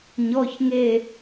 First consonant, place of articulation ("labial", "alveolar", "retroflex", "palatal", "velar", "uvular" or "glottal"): palatal